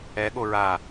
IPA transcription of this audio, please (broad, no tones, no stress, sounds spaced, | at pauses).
ɛ ɠ o ɹ a